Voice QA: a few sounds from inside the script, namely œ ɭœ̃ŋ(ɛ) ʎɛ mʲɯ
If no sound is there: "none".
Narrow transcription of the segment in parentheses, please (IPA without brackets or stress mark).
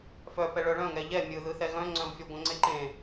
ɛ